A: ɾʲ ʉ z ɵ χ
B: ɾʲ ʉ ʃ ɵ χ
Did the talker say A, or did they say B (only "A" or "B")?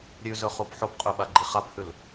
A